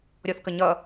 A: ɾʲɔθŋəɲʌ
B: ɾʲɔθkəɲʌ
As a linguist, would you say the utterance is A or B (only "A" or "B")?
B